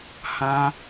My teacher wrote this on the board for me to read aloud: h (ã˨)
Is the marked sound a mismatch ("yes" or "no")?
yes